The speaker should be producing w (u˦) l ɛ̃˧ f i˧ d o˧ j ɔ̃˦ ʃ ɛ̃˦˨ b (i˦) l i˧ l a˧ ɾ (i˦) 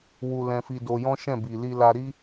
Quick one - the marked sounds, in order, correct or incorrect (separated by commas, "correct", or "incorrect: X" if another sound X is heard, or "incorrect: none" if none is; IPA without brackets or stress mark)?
incorrect: u˧, incorrect: i˨, correct